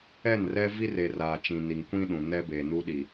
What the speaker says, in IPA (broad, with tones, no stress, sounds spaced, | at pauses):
ɛ˦˨ n r ɛ˦ v i˦ r e˨ r aː˨ t͡ʃ ĩ˨ n i˨ ŋ kʷ ĩ˦ ɗ ũ˨ n ɛ˦ b e˨ n u˦ ɗ i˨